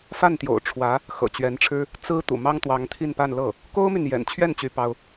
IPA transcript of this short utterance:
fa˥˩nt̪jo̰˨˩ʊ̯ ʈ͡ʂʰwä˧˥ | xɤ̰˨˩t͡ɕɥɛ˧˥nʈ͡ʂʰɻ̩˥ | t͡sɹ̩˥ t̪ṵ˨˩mɑ˥ŋ t̪wɑ˧˥ŋt̪ʰi˥˧npa˥˧nlɤ˥˩ | ko˥ʊ̯my˨njɛ̰˨˩nt͡ɕʰɥɛ˥˩n t͡ɕy˥pɑ˥ʊ̯

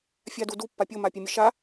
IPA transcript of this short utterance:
fʲadudu pːapʲo mapʲɛmʲɘʃa

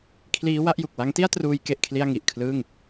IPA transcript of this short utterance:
kʰliː˦˥wa˦˥ʔju˨˩k̚ wa˦˥ŋti˥˩a̯truː˧j ke˥˩ʔkʰli˥˩a̯ ŋi˨˩ʔkʰlɯː˥˩ŋ

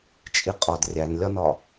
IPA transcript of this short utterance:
t͡ʃʼiqʼɒd rʲænlʲɒnɒ

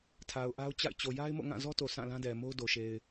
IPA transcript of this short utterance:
tʰa˨ʊ̯ ʔa˦ʊ̯t͡ɕa̰˦˨ɪ̯ t͡ɕo˨ja˦ɪ̯mo̰˦˨ ŋã˦˨zɔ˦to˨ sã˦˨lã˦dɛ˨mo˦ʊ̯ do˨ʃe˨ɪ̯

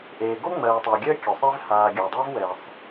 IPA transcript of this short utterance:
ʔeː˨ɡo˥ŋ͡mɜː˨tˤəː˨ ɡʲəː˥kʲʊ˩sˤe˦vhaː˨ ɡʲʊː˩dˤa˦v wɛ˩sˤ

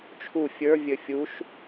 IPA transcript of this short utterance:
t͡ʃʰu fʲə˞vʲɘ fʲuʃ

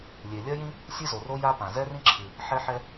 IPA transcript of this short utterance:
lʲe˩ lʲɐ˥jĩ˥ | sʲɨ˥zo˩ro˥ ja˥pã˩ zɛ˥rĩ˥ǁʰɨ˩ | ħɛ˥ħɛ˥

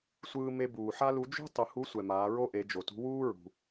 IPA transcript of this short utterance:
sʷɯː˧me˧buː˩ ħa˥lu˧˥ d͡ʒṳ˥ tˤɯ˩˧hu˧˥sʷɛ˩ maː˩˧ ɹo˥ʔe˩˧d͡ʒo˩tṳ˧˥ wuː˥ɹṳ˩

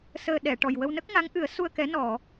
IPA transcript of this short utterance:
səː˨˩ ɗɛ˨˩˨ʈɔ˨˩jwə˧wnə˦˥k̚ ŋa˧˥ŋʔɨ˨˩˦ə̯su˧ə̯ kɛ˧˥ nɔ˨˩˨

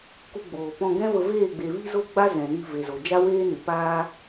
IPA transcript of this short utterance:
ku˧ɡ͡boː˨ pɔ̃˧ɡɛ̃˦və˧ veː˦˨ɡ͡be˨ vi˦zo˦ɡ͡ba˦ zɛ̃˨ ni˧ve˨ zo˨d͡ʒa˦ weː˦nɨ˨ paː˦

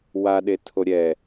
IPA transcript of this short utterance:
waɗetʰo ɾʲɛ

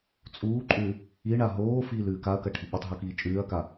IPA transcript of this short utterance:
t͡sʼuːǃʼʉ | iɳa ɦoːfiːlʉːk aɐ̯kɐʈʰi ɓutˤɦukiː t͡ʃʼʉːɐ̯ka

